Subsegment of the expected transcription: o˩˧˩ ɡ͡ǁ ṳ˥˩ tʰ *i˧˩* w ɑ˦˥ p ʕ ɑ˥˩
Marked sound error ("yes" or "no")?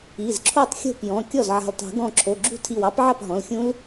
no